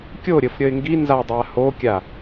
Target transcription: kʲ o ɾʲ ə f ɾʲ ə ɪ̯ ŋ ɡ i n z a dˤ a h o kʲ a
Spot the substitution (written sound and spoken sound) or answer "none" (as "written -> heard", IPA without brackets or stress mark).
none